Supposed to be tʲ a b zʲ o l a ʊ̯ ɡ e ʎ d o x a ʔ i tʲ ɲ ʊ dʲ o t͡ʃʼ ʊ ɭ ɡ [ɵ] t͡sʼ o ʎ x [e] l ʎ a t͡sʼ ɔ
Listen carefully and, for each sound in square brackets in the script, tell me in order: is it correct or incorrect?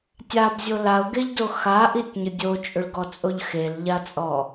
incorrect: ɔ, correct

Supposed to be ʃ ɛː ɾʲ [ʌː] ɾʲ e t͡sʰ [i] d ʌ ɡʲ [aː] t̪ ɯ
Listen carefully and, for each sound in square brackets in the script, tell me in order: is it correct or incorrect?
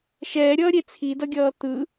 correct, correct, incorrect: ʌː

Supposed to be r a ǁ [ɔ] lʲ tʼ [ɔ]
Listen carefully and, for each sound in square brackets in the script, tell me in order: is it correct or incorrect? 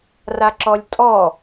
correct, correct

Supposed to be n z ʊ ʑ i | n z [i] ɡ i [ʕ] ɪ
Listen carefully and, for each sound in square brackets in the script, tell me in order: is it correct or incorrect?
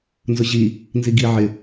correct, correct

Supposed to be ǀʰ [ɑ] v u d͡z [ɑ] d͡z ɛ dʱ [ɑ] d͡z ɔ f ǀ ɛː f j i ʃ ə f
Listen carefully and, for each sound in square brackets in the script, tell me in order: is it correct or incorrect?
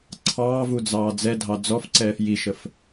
incorrect: ɑː, incorrect: ɑː, correct

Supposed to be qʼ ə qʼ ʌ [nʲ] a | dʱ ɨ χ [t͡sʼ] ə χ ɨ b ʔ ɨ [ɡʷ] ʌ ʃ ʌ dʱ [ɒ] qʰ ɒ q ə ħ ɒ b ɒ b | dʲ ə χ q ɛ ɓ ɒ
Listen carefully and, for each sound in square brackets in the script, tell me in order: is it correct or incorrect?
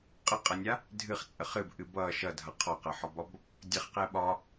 correct, correct, incorrect: b, incorrect: ʌ

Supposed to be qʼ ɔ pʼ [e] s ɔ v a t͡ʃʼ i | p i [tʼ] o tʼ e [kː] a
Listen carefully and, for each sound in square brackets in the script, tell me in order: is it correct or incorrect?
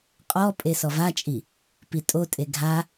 correct, correct, incorrect: ɡʱ

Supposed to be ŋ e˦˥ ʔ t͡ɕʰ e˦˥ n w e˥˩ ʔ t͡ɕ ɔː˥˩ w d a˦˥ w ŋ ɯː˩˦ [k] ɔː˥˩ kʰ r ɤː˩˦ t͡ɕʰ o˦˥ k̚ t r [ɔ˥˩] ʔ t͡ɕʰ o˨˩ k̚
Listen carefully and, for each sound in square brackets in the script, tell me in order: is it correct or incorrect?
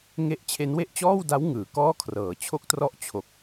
correct, incorrect: ɔ˦˥

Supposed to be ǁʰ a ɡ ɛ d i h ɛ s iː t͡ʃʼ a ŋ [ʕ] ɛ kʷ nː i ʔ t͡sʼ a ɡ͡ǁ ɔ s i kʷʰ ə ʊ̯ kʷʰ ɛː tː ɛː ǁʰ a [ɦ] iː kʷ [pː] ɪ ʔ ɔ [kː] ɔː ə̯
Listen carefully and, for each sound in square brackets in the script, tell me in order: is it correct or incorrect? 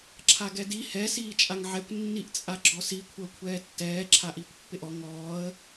correct, incorrect: ʔ, correct, incorrect: ŋ

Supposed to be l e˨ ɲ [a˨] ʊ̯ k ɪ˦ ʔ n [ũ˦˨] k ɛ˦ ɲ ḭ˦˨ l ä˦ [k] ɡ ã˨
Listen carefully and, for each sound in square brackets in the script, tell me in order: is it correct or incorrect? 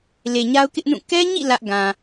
incorrect: a˦, correct, incorrect: ʔ

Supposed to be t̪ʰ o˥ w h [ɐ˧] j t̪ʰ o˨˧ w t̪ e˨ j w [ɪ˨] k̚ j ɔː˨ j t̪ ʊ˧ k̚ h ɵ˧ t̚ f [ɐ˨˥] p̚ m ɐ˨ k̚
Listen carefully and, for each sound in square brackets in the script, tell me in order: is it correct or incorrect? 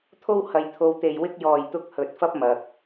correct, incorrect: ɪ˧, incorrect: ɐ˥

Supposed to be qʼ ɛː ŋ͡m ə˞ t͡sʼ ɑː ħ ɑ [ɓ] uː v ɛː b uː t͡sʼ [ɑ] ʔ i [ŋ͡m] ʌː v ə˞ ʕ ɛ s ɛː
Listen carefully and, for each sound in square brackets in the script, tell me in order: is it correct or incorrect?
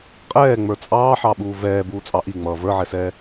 correct, correct, correct

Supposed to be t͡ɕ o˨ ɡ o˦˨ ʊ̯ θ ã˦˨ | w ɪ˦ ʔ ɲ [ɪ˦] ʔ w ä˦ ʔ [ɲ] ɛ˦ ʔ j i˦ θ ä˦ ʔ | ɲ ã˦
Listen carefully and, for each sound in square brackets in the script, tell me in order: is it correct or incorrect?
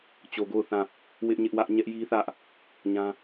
correct, correct

